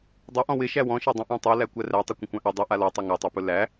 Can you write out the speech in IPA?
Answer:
dˤ ɵ ʔ ɔ̃ w ɪ ʃ æ w ɔ̃ ʃ æ dˤ ə̃ ʔ ã tˤ o l æ kʷ æ r æ tˤ ɛ kʷ ə̃ kʷ ã ʔ ʉ dˤ ɵ ʔ a l ɔ tˤ ɵ ŋ æ tˤ a p ɵ l æ

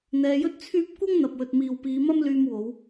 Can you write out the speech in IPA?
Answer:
n̪ ɛː˧ j ɵ˥ t̚ t͡sʰ yː˥ p̚ kʷ ɐ˥ ŋ n̪ ɐ˨ p̚ w ɵ˨ t̚ m iː˨ w p iː˨˧ m ɐ˥ m l yː˧ m w o˨˧ w

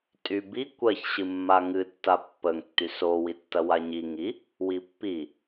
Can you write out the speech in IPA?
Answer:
tʼ y b i kʷ ɜ ç ɕ ɨ mː a ŋ ɨ tː a pː ə ŋ tː y s o w i tː ɐ w a ɲ i ŋ i | w i pː i

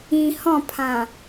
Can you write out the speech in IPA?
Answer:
ĩ h ɔ̃ pʰ ã

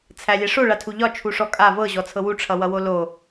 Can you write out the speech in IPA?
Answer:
t͡sʰ æ lʲ ɛ ʂ o ɭ a tʰ u ʎ ɒ t͡ʃʰ u ʂ ɔ kʼ a v ɤ ʑ ɔ t͡sʰ ɤ w u ʈ͡ʂʰ ʌ w ʌ w o l o

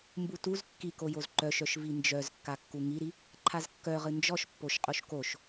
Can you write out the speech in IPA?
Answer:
m b u t u z kː i k o j o z ǃ œ ʃ œ ʃ v i n d͡ʒ œ z kː a kː u ŋ i ɾ i | ǃʰ a z kː œ ʁ ɨ n d͡ʒ ɔ ʃ pː o ʃ qʼ o ʃ k o ʃ

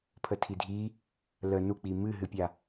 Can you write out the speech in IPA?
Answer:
pʰ ə tʰ i dʱ i | l ə n u k͡p i m ɨ ɦ ɨ pʲ a

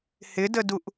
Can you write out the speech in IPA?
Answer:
h ɪ d ə d u ʔ

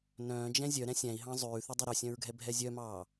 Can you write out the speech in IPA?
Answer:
n œ̃ː d͡ʒ ɛ̃ zʲ œ ɾ ɛ̃ sʲ æ̃ i̯ ɦ ɑ̃ zˤ ʉː θ y dˤ ø ɾ ø sʲ œ̃ ɹ ɡʱ ɛ bʱ ɛ zʲ œ m ɑː

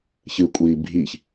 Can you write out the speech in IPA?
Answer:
ç ɨ kʷʼ iː bʱ i ç

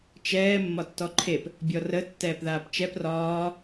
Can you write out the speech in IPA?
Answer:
t͡ʃ ɛː mː ɒ tː ɔ ǃʰ e p | bʲ ɔ r ə tː ɛː p ð aː p t͡ʃ ɛ p r ɒː

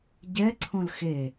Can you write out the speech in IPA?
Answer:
ɟ ɛ ǀʰ õ l x e

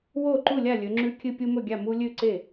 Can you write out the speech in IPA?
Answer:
w oː˥˨ ǃ u˥˨ lʲ a˥˨ lʲ ɵ˨˦ ŋ͡ǁ ʉ˦ kʲ ɨ˦ pʲ u˦ m ɵ˥˨ ɡʲ a˥˨ m u˦ lʲ ʉ˥˨ ǀ e˥˨

